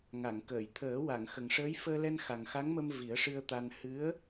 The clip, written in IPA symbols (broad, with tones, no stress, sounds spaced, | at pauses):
ŋ a˨˩˨ ŋ k əː˨˩˨ j t̪ʰ əː˨˩˦ w a˨˩˨ ŋ x ə˨˩ ŋ ʂ əː˧˥ j f əː˧ l ɛ˧ n x a˨˩ ŋ x a˧˥ ŋ m ə˧ m v i˨˩˦ ə̯ ʂ ɨ˧ ə̯ t̪ a˧ n h ɨ˧˥ ə̯